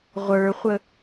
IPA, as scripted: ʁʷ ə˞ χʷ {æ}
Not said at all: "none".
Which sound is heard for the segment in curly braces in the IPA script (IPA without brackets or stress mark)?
ə